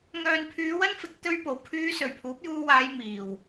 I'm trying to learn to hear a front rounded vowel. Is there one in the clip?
yes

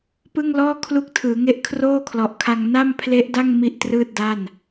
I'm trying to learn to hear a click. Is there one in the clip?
no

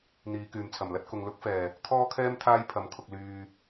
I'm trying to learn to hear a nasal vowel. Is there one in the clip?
no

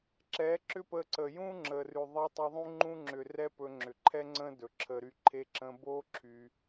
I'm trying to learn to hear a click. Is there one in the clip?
yes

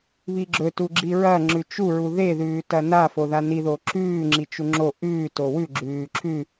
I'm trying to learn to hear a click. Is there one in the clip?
yes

